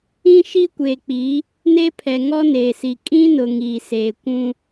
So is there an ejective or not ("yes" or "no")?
yes